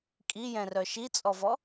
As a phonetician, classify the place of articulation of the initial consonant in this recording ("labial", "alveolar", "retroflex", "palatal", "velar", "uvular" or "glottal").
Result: velar